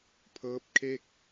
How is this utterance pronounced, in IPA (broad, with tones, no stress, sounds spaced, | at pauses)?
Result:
pʰ ɤː˦˥ p̚ kʰ e˥˩ k̚